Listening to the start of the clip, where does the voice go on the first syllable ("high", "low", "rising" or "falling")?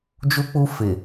high